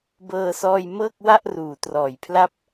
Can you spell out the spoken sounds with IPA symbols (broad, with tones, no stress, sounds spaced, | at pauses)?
b ɤː˧ s ɔː˧ j m ɤː˥˩ k̚ w a˥˩ ʔ r uː˩˦ t r ɔː˩˦ j pʰ l a˥˩ p̚